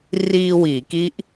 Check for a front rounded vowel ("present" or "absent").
absent